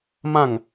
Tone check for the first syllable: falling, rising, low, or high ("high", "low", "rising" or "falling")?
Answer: falling